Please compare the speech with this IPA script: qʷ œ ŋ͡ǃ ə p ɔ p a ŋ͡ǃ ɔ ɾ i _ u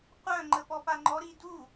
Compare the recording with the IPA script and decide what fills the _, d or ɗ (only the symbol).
d